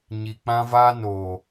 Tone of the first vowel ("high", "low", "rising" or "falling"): low